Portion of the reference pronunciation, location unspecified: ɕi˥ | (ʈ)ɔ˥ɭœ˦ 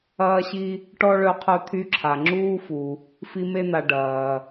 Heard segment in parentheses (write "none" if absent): ʈ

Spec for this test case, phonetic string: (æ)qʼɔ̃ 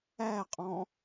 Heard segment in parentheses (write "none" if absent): æ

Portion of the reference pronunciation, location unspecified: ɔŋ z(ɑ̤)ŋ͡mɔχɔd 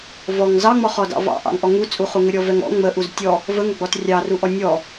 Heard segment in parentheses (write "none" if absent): ɑ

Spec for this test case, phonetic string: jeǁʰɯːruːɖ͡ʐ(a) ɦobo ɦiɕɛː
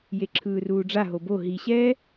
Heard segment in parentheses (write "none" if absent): a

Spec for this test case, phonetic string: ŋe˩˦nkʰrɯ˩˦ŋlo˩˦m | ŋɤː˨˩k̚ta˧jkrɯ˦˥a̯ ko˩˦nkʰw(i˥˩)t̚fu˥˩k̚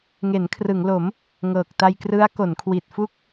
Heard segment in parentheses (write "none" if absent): i˨˩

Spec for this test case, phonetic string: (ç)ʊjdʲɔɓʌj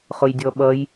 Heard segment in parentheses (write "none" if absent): χ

